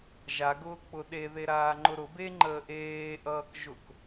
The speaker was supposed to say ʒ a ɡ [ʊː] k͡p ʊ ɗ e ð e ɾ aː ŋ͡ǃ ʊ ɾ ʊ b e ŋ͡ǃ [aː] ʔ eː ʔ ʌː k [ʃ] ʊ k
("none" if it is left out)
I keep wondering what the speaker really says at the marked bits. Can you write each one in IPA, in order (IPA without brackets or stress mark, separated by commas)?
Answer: ʊː, əː, ʒ